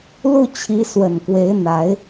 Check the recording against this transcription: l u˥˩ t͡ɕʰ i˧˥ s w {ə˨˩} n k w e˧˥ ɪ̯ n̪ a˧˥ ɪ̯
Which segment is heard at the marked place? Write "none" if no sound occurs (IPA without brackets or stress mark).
ə˨˩